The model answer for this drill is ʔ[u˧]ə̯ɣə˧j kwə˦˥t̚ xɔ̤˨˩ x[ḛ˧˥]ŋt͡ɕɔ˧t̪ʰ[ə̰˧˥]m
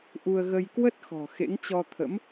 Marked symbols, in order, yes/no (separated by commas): yes, yes, yes